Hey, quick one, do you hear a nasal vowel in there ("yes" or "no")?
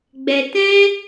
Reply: yes